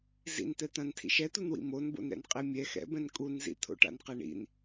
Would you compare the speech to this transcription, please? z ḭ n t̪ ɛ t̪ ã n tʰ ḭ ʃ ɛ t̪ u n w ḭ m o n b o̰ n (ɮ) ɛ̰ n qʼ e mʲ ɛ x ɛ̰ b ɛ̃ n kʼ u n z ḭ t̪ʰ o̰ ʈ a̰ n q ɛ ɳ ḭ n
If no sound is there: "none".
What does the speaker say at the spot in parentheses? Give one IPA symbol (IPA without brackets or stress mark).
ɾ